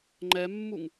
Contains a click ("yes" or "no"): yes